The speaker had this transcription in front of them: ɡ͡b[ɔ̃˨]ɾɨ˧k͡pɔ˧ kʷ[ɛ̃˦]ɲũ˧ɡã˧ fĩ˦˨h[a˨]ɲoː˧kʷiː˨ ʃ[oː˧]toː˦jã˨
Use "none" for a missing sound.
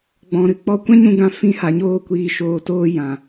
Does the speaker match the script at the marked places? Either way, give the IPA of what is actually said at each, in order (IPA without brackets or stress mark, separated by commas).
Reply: ɔ̃˨, ɛ̃˦, a˨, oː˧